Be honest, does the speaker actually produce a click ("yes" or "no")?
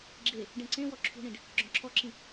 yes